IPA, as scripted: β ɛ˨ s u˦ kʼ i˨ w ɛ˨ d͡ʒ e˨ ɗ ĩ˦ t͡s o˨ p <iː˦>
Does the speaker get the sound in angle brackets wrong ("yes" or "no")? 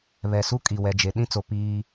no